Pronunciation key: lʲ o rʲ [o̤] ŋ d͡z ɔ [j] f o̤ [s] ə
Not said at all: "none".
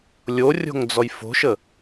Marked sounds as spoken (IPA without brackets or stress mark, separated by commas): o̤, j, ʃ